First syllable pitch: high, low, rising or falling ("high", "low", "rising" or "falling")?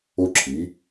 high